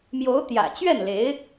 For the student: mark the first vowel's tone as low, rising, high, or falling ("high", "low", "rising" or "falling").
rising